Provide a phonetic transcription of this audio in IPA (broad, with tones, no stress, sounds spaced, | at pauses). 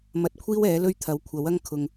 m ɐ˧ t̚ kʷʰ iː˥ w ɛː˨˥ l ɵ˥ ɥ t̪ʰ ɐ˨˥ w kʷʰ ɐ˨˥ w ɐ˥ ŋ kʰ ʊ˧ ŋ